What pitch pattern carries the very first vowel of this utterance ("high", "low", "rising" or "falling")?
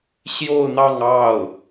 falling